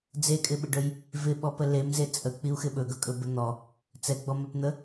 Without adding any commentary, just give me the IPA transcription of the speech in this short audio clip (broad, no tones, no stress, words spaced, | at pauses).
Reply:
d͡zekʼɪɓɪɖɵj | vɪɓɔpə lemze t͡sʼək͡piu̯xɪ ɓɵɡɵkʼɵbə n̪ɔ | t͡sɛɡ͡bɔmɛpn̪ə